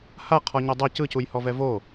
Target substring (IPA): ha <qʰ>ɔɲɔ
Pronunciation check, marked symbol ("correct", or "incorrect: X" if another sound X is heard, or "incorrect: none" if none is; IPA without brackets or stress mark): correct